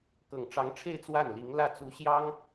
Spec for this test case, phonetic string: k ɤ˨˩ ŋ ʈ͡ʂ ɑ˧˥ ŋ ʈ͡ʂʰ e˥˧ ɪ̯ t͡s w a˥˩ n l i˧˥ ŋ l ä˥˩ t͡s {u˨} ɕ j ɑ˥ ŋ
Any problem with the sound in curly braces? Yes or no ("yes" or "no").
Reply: yes